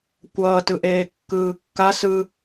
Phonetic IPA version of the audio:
kʷʌːtɯ ʔeːkːɯːkːa sɯ

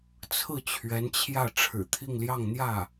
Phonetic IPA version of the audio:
t͡sʰɹ̩˥˩t͡ɕʰɥɛ˧˥nt͡ɕʰjä˥˩ ʈ͡ʂʰɻ̩˨˩t̪ʰi˥˧ŋljɑ˥˧ŋ n̪jä˥˩

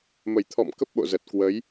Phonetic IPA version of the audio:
mə˧˩jt̪ʰɔ̰˧˨m kə˦˥p̚ɓo̰˧˨zə˨˩t̚ kwə˨˦j

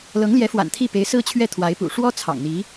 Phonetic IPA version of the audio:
lɤ˧˥ŋljɛ˧˥fwa̰˨˩n t̪ʰi˥˩ pe˧˥ɪ̯sɹ̩˥t͡ɕʰɥɛ˥˩t̪ʰwa˧˥ɪ̯ pṵ˨˩ʂwɔ˥ t͡sʰɑ̰˨˩ŋn̪i˧˥

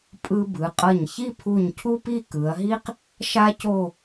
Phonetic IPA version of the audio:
pʼɯ˧bɯ˩˧qʼʌ˧˩ɲ çi˥˧pʰu˧˩ɲ cʰu˥pi˥˧ kɯ˩˧ɐ̯ɦi˥q | ʃa˥co˥˧

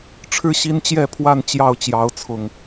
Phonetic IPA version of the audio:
ʈ͡ʂʰɻ̩˥˨ɕi˦nt͡ɕjɛ˥˨pʰwa˥˨n t͡ɕjɑ˥˨ʊ̯t͡ɕjɑ˨˦ʊ̯t͡sʰʊ˨˩ŋ

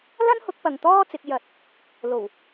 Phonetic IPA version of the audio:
lɐ˥nhʊ˨˥k̚ pɐ˨˧ŋt̪ɔː˥t͡sɪ˨˥k̚ jɐ˨˥t̚ | lo˨˩w

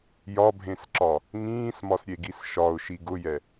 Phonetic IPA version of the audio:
jɒbʱẽsǁɒ | ŋĩːsmɒsɾʲeɡis ʃɒʊ̯ʃi ɡʊjɛ

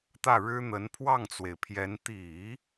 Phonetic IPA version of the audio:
t̪ä˥˩ɻɻ̩˥n̪ə˧˥n pʰwɑ˥˩ŋt͡swe˩ɪ̯pʰjɛ˧˥n t̪i˨˩˦

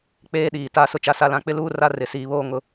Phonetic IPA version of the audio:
k͡peː˦ɗiː˨ta˦˨sʊ˦ t͡ʃa˦sa˦lã˦ k͡pɪ˦luː˦ra˦ rɪ˨siː˨βoː˦ ŋʊ˦

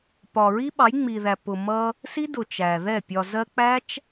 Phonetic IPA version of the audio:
pɒ˨ɹi˦ ɓɑ˨˦jŋ͡mi˨ðæ˨ pʊ˨mʌ˧ | si˦dʊ˨ t͡ʃæ˨ðɛ˦˨ pʲɒ˨zɜ˧ k͡pæ˦t͡ʃ

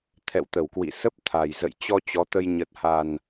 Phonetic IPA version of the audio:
t̪ʰɛ̰˧˨wt̪ə˧˩wkwḭ˧˨ sə˦˥p̚t̪ʰa˨˩j zə̰˧˨jt͡ɕɔ˧ t͡ɕɔ˨˦t̪ə˧j ɲə˨˩t̚ha˨˩n

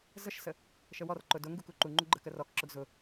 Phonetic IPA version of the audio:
zəʃsə | ʃəwɔrǃʊ dʊŋɡu kuǃuŋ͡ǃu ɡ͡ǃəkərɔkǁʊɡ zʊ

